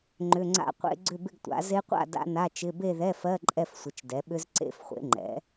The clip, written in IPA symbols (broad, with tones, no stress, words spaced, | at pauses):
ŋ͡ǃʏ˧˥˧ŋ͡ǀa̰˥˧qʷḛ˦˥ ɡ͡ǀʏ˥˧bɪ˥˧ɡtʷa̰˩˥ ze˦˥qʷa̰˥˧ da̰˦˥na˧˥˧t͡ʃɪ˧˥˧ be˥˧ðɛ˧˥˧fɜ˧˥˧ ǃʼɛ˥˧fsʷɪ˩˥t͡ʃdɛ˩˥ɓʏ˦˥z ǀḛ˦˥fχʷḛ˩˥ŋ͡ǃɛ̰˩˥